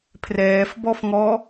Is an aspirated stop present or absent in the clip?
present